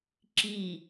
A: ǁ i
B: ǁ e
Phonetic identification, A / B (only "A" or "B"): A